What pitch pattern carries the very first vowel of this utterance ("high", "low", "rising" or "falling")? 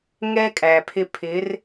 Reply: high